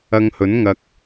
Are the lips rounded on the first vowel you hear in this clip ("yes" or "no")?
no